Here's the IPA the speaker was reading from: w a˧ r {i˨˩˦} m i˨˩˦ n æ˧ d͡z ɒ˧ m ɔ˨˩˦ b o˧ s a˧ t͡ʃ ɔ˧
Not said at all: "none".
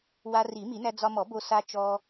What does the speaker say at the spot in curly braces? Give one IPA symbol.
i˨˩˦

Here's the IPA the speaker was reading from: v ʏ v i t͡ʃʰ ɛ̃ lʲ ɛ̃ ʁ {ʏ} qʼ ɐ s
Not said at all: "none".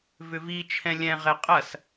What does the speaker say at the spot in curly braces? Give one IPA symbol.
ɛ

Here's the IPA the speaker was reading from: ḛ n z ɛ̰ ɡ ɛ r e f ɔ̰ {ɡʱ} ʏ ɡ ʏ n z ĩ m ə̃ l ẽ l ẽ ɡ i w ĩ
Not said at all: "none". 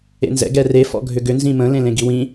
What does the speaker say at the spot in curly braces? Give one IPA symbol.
ɡʱ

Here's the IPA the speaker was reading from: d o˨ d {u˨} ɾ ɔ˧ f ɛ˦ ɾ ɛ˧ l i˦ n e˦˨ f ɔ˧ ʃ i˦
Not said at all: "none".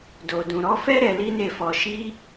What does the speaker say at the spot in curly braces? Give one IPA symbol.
ũ˨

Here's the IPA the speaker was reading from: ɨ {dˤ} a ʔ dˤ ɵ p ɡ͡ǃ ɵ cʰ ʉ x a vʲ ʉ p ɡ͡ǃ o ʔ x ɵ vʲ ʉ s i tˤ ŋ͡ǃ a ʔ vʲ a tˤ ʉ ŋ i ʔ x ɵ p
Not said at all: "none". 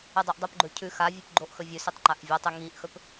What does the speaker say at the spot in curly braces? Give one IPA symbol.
dˤ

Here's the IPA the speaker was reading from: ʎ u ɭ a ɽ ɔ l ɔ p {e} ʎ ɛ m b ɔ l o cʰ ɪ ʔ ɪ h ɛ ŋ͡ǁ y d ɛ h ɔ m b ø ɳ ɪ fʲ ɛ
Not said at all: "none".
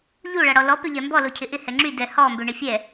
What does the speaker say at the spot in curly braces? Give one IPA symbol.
ø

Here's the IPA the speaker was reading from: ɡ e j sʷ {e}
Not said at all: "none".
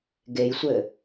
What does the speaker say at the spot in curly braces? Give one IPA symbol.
ɘ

